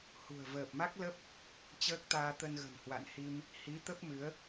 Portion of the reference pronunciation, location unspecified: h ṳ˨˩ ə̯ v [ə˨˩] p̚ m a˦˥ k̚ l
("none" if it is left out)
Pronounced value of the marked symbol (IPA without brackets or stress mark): əː˨˩